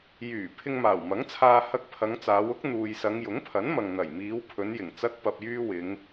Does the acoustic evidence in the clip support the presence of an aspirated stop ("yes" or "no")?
yes